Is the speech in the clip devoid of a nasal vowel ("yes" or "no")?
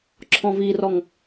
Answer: no